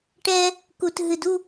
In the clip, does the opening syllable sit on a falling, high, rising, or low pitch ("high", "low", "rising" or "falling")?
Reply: high